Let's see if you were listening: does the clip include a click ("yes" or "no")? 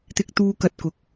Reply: no